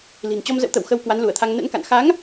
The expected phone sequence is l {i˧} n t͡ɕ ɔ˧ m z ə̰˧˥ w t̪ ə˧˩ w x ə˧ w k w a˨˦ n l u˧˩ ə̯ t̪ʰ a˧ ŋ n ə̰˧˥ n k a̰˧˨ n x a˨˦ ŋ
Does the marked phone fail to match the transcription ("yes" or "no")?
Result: yes